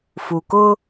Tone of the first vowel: low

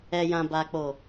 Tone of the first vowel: low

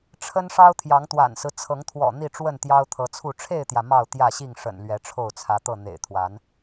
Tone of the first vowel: high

